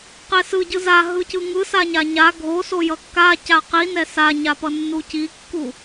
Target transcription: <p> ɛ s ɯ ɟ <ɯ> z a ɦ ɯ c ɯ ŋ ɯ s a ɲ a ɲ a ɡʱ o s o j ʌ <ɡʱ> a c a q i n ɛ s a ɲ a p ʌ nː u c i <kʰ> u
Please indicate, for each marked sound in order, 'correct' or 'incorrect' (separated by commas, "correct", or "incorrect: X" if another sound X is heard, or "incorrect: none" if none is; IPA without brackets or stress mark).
incorrect: q, correct, incorrect: kː, incorrect: kː